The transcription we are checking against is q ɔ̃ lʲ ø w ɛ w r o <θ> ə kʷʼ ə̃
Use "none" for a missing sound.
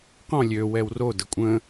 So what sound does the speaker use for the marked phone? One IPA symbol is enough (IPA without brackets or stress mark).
d